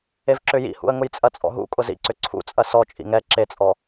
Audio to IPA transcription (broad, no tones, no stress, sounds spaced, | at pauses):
e v ǁ ʏ j ḭ h ṵ ə̯ ŋ ʊ j t͡sʼ ɐ t͡sʼ ɔ̰ ɦ ṵ kʼ ʊ z ḭ ǀ ʏ ǀʰ ṵ t͡sʼ ɐ s ɔ t͡ʃʼ ḭ ŋ ɛ ǁ e t͡sʼ ɔ